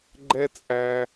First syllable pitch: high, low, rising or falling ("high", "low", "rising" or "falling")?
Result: high